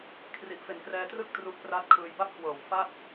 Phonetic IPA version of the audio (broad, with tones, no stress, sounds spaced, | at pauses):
kʰ r i˨˩ ʔ f e˨˩ n k r ɛː˧ t r ɯ˥˩ k̚ t r u˦˥ ʔ p r a˦˥ t̚ kʰ ɯː˧ j b a˥˩ p̚ k w ɤː˨˩ w f a˥˩ t̚